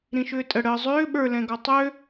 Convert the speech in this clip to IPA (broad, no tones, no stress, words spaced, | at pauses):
ɾĩʃʏːtʼə ɽəːzˤʏː ɓə˞lɛ̃ɡɔ tˤø